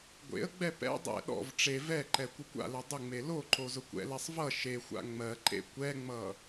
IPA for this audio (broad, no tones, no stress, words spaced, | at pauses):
ɡʷḛə̯ɡ͡bɛ pɛ̰ dˤɛ̰ ɗɔ̰v ʈ͡ʂe vɛǃɛ kʷəkʷa̰lɛ dˤʊŋ͡me loǃo zʊkʷɛ̰lɛsˤ vʌ ʃexʷa̰ ŋ͡mɜǃḛ kʷɛŋ͡mʌ